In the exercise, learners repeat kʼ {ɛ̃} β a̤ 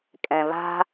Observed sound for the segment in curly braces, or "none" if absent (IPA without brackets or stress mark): ɛ̃